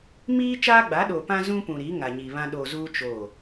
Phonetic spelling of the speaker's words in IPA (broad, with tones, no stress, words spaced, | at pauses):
miː˦ t͡ʃaː˦ɡ͡ba˨˦ ɗo˨pã˦ zũ˦pũ˨ɾi˨˦ ŋa˨ɲi˨βã˦ ɗo˨zuː˦ t͡ʃoː˦˨